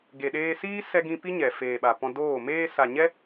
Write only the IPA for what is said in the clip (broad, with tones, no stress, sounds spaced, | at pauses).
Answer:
ɡ e˨ ɗ eː˧ s iː˦ s ɛ˧ ɡ ĩ˧ p i˦ ɲ ɛ˨ f eː˨ ɓ a˨ p ɔ̃˧ d oː˦˨ m eː˧ s a˨ ɲ ɛ˦